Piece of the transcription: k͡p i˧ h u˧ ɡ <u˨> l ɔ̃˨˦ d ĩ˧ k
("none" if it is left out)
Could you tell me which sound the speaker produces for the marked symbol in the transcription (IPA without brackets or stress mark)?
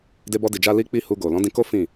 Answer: o˨